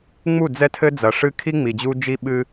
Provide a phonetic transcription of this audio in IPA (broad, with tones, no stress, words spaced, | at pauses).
ŋ͡mu˦˨d͡zɛ˦tʰɘ˦ d͡zɐ˨ʂɨ˦kʰi˦ ŋ͡mi˨d͡ʑu˦d͡ʒi˦ ɓɨ˦